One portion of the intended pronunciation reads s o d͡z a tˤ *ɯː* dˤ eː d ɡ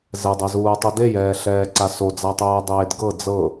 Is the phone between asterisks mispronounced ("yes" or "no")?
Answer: no